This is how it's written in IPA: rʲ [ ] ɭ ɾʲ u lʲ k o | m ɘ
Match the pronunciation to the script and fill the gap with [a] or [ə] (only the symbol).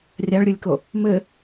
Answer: a